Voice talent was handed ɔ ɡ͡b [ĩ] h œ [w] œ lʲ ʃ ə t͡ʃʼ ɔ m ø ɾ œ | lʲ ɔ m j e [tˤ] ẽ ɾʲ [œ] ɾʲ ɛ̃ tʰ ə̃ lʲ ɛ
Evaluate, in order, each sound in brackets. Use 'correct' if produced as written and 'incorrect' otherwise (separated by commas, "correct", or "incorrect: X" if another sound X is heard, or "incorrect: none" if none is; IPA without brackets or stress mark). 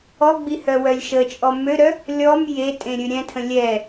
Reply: incorrect: i, correct, incorrect: tʼ, incorrect: ø